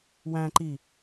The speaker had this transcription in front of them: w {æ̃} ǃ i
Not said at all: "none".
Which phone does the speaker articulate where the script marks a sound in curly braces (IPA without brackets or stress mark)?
æ̃